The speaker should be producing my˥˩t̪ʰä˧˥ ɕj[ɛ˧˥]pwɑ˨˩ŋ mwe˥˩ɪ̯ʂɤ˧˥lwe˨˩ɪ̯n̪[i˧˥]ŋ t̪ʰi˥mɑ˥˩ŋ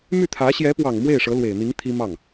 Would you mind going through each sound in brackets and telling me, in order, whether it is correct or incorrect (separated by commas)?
correct, correct